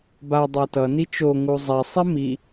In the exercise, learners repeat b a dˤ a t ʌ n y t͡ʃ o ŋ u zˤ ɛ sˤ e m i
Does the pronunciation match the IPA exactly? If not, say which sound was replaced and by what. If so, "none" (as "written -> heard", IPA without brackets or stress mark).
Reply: y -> i